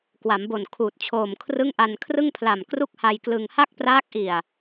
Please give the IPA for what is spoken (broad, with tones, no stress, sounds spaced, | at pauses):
k w a˩˦ m b o˨˩ n kʰ uː˨˩ t̚ t͡ɕʰ oː˨˩ m kʰ r ɯ˥˩ ŋ ʔ a˧ n kʰ r ɯ˥˩ ŋ pʰ l a˨˩ m k r u˥˩ k̚ h a˧ j k l ɯ˧ ŋ h a˥˩ k̚ p r aː˦˥ k̚ ʔ i˨˩ a̯